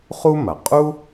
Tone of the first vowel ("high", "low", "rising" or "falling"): high